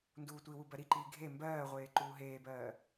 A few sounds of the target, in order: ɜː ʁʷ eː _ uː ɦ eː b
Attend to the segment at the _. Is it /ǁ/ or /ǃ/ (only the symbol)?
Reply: ǃ